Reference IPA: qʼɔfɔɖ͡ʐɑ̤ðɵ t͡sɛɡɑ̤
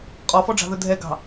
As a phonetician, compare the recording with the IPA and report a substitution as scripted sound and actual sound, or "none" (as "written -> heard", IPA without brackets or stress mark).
t͡s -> dʱ